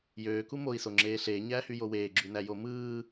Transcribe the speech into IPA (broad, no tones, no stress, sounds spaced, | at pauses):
j øː k u m o i̯ s o ŋ͡ǁ eː ɬ eː ɲ æː h y j o w eː ɡ͡ǁ y n æ j o m ɯː